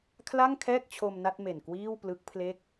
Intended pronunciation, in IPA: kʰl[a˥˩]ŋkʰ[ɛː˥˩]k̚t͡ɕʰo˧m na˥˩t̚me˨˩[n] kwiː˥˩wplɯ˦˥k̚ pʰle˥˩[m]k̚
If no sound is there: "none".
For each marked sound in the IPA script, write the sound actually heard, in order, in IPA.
a˥˩, ɛː˥˩, n, none

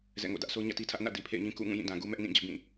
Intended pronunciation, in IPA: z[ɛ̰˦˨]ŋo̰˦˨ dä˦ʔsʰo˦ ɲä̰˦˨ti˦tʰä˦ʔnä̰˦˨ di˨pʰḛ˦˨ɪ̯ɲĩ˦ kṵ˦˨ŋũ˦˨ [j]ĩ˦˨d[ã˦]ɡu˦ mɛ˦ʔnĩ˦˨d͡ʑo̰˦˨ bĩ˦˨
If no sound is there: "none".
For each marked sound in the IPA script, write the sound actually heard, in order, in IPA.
ɛ̰˦˨, j, ã˨

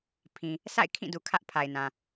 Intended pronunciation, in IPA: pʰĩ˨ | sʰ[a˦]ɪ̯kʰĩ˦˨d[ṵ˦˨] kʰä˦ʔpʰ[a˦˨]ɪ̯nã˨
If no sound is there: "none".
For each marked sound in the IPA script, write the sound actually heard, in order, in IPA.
a̰˦˨, u˨, a˨

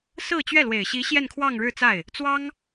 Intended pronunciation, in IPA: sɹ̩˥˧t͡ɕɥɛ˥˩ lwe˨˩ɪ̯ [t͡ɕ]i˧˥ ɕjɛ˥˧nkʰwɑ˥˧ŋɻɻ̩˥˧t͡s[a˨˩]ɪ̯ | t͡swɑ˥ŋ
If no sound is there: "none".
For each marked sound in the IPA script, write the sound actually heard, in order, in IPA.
ɕ, a˥˩

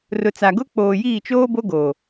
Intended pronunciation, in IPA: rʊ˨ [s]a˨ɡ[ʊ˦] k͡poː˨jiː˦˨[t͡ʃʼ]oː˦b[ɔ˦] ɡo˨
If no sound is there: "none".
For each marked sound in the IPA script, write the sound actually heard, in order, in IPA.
t͡s, ʊ˦, t͡ʃ, o˦

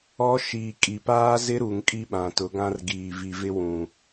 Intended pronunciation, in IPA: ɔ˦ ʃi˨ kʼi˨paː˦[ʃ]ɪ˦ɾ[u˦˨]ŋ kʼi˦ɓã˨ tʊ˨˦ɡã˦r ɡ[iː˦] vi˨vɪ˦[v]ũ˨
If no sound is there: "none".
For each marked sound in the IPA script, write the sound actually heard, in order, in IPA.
z, u˨, iː˨, w

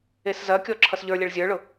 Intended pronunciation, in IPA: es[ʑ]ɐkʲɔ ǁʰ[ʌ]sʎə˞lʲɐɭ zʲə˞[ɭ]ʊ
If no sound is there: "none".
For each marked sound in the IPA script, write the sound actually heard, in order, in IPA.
z, ʌ, ɭ

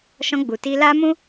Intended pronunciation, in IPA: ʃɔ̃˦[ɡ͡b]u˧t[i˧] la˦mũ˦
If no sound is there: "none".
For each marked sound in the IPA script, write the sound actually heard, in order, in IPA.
ɡ͡b, i˦

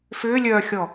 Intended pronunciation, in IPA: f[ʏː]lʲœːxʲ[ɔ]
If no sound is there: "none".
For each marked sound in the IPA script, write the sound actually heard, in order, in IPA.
ʏː, ɔ

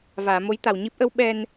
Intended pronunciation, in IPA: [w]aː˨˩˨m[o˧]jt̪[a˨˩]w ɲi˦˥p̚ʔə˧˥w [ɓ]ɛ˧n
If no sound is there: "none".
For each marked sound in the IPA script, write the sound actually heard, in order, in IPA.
v, o˧˥, a˨˩, ɓ

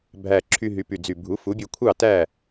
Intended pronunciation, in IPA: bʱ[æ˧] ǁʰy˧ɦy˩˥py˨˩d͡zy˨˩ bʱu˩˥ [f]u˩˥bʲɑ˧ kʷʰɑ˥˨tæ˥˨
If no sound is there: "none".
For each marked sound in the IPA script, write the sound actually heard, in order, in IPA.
æ˨˩, f

